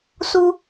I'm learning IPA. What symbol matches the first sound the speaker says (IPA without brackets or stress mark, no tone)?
s